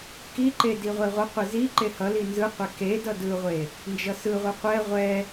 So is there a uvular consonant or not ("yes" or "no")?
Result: yes